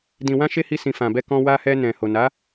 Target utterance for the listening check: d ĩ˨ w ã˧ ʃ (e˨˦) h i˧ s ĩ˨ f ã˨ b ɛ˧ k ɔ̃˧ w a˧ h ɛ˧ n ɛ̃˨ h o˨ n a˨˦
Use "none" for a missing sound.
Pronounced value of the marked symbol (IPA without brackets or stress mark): e˧